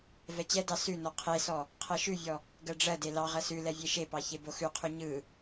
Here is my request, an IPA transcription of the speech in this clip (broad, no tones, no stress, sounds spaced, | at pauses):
v ɛ t͡ɕ ɛ d ɑ s ʉ n ɔ qʰ e s ɔ | qʰ ɜ ʃ ʉ vʲ ɔ | ɡ ɜ ɖ͡ʐ ɜ d e l ɑ ʁ ɜ s ʉ l ɛ vʲ e ʃ e p ɑ ç e b o x ʉ qʰ ʉ ɲ ɯ